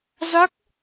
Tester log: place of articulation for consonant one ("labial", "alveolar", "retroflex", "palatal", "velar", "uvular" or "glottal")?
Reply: alveolar